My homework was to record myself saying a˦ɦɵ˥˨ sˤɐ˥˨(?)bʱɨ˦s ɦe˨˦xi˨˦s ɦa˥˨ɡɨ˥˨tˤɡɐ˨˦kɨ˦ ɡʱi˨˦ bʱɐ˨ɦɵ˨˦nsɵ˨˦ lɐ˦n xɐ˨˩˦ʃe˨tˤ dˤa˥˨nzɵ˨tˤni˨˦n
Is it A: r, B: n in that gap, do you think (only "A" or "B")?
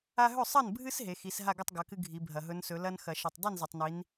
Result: B